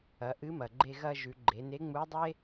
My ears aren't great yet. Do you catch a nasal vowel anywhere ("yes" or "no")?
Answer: no